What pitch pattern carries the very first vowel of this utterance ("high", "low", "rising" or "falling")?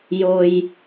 high